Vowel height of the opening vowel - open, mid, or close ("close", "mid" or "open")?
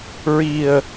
close